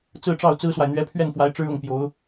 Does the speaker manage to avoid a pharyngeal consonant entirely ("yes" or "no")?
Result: yes